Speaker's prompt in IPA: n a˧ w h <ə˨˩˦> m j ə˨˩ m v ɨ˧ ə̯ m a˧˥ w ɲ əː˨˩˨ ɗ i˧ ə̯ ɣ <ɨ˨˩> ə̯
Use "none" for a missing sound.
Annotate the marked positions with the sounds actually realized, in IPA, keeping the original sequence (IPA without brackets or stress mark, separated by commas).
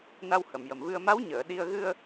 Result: ə˨˩˨, ɨ˧